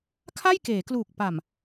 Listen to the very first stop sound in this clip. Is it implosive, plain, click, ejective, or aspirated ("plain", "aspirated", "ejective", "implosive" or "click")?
aspirated